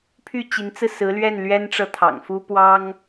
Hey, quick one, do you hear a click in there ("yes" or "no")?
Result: no